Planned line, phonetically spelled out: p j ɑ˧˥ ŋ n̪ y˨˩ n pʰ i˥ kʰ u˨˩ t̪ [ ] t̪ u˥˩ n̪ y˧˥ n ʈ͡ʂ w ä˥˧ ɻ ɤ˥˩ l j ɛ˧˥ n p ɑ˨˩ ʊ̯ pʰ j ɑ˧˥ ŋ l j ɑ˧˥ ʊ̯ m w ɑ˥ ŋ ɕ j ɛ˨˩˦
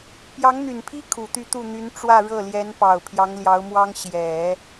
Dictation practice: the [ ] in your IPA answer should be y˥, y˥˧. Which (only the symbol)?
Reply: y˥˧